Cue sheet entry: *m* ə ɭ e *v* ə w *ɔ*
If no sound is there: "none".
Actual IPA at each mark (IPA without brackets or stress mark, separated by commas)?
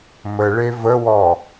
m, v, ɔ